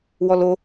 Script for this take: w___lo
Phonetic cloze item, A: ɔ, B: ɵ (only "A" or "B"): A